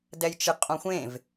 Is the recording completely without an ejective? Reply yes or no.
no